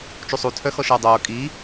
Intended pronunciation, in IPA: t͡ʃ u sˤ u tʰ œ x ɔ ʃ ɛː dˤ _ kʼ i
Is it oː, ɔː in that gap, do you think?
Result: oː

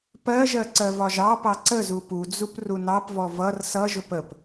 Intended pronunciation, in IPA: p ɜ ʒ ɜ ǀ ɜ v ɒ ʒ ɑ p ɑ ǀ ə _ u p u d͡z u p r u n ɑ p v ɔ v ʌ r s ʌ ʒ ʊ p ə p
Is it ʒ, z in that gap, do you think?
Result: z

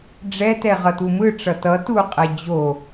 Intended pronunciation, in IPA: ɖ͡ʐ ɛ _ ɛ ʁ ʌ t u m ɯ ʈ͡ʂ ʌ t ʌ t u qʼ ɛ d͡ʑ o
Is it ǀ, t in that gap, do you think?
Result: t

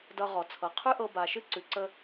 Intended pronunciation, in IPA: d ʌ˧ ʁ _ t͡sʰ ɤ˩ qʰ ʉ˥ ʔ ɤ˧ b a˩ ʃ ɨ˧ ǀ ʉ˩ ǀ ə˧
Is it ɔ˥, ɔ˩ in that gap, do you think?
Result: ɔ˩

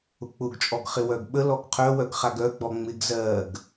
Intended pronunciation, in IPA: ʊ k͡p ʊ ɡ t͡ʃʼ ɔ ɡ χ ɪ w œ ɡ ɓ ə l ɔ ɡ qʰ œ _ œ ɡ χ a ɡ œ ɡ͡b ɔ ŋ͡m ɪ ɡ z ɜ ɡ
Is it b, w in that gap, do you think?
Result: w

